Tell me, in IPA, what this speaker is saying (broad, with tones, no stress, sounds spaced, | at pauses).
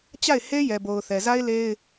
t͡ɕ a˦˨ ɪ̯ h e˦ j ɛ˨ b o˨ ʊ̯ θ ɛ˨ z a˦ ɪ̯ l e˦ ɪ̯